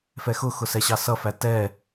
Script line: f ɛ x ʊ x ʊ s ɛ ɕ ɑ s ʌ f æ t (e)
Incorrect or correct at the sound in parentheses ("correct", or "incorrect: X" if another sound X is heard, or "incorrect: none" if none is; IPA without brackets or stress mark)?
incorrect: ɛ